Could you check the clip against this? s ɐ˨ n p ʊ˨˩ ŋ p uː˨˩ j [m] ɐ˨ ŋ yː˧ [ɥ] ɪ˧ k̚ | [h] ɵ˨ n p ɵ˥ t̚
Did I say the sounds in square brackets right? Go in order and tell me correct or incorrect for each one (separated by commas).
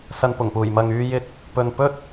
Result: correct, incorrect, incorrect